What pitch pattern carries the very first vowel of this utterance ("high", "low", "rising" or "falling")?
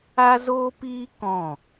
high